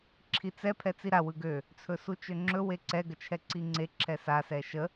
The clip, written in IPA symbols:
ǁʰit͡sɛ pʰɛt͡siɾa wɯɡø | t͡sʰɵsut͡ʃøŋ͡ǁɵ weǀɛ ɡət͡ʃʰɛǀiŋ͡ǀe ǁʰɛsa sɛʃə

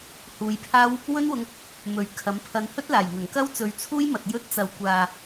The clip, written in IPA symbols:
huː˨˧jpʰaː˥w | wɵ˥nwʊ˧ŋ | mɵ˨ɥ kʰɐ˨˥m pʰɐ˨˧nhɵ˥t̚laː˨˩j ŋɐ˨˩ŋkɐ˥wt͡sɵ˨˧ɥt͡sʰuː˥j mɐ˨t̚jɵ˧t̚ t͡sɐ˨wkʷaː˨

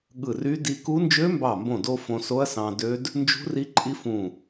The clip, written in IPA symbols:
ɠɯ˧˩ry˦˥ di˧ku˦˥ nd͡ʒø˦˥mbɑ˧˩mbõ˧˩do˧ fõ˧so˦˥ɐ̯sɑ̃˧dø˦˥d | nd͡ʒṳ˦˥ri˦˥ǃʼi˦˥ fũ˧˩

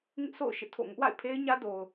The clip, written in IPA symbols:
ŋɪ˦ʔso̰˦˨ʊ̯ ʃɪ˦ʔtʰo̰˦˨ ŋʊ˦ʔwa̰˦˨ɪ̯pʰe˦ɪ̯ ɲä˦do˨ʊ̯

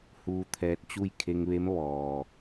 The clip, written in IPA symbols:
huː˧t̪ʰɛː˧t̚ t͡ɕu˥˨j kʰe˧ŋʋe˧˥m ʋɔː˩

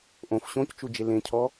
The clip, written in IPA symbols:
ʔõf ɕõct͡ʃud͡ʒe lẽcʰɔ

